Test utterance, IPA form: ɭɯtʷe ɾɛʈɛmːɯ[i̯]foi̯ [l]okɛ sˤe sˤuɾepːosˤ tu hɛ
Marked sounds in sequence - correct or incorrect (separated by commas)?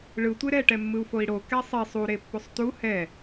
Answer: incorrect, incorrect